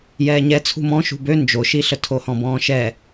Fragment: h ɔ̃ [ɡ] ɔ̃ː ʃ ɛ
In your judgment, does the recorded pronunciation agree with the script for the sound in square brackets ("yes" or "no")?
no